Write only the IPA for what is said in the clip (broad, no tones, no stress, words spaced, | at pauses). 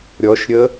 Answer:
ɾʲɔʃɾʲə